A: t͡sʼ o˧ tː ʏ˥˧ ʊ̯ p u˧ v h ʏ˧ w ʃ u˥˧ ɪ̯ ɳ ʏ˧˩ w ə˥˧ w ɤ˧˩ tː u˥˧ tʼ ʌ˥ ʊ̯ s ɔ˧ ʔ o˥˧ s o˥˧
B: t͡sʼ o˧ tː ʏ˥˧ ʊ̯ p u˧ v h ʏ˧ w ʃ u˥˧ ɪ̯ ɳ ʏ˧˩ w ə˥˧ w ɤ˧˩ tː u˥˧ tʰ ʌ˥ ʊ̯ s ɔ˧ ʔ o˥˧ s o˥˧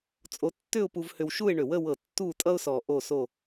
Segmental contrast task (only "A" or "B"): A